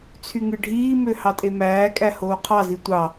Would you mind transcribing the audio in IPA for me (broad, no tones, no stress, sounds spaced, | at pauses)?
t͡sʰ y ŋ ɯ ɖʱ iː m ø h ɑ tʼ e m æː kʼ æ h oː qʰ ɑ z i tʷ ɑ